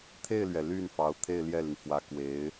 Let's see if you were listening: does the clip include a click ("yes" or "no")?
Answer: no